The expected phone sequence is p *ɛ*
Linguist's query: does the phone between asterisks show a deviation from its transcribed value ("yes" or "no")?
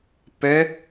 no